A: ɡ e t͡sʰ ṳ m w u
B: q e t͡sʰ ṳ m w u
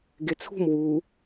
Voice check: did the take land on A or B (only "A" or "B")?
A